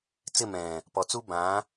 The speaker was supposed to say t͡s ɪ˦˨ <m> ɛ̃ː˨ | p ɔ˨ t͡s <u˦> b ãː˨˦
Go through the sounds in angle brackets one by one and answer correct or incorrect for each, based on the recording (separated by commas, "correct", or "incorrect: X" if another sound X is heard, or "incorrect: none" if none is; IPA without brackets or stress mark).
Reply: correct, correct